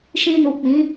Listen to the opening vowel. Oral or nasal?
nasal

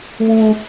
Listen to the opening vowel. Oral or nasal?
nasal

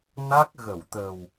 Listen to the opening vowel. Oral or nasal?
oral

